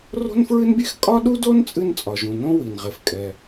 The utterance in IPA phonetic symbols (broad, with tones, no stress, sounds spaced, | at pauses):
r o̤˥ n f ɹ ɨ˥ n bʲ e˥ x kʼ ɒ˥ ɗ u˥ d o˥ n t͡sʼ ɨ˥ n t͡sʼ ɒ˩ ʒ ũ˩ n õ˥ w i˩ n ʁ e˩ f kʼ ɛ˩